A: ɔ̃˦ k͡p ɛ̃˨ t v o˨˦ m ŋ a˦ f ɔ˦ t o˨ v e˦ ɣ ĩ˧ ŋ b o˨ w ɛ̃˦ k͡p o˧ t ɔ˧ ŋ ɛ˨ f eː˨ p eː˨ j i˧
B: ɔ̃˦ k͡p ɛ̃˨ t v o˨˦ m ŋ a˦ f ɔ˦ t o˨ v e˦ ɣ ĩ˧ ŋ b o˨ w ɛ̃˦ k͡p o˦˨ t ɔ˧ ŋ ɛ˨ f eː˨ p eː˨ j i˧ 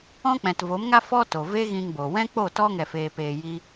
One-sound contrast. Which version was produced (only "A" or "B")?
B